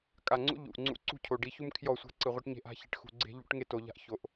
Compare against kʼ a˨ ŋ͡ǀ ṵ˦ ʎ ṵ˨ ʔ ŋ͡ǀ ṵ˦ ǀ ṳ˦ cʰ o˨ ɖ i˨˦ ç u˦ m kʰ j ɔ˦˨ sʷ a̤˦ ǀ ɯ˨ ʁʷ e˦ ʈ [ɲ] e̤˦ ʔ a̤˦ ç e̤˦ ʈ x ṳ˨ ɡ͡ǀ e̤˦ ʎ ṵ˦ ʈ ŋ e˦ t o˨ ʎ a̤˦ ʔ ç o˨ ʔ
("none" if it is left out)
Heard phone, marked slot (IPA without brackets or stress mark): ɲ